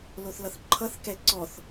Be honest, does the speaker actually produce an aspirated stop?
yes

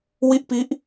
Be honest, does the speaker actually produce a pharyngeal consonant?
no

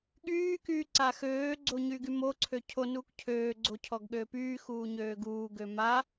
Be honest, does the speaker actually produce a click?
yes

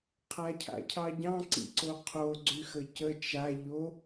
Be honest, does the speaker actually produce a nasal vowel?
yes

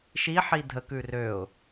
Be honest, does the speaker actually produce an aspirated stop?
no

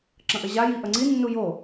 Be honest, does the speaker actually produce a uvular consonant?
no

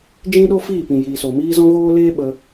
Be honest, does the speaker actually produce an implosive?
yes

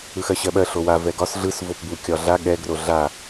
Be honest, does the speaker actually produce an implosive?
yes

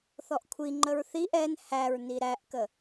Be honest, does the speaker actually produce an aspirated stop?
yes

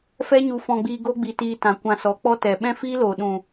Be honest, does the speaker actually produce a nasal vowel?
yes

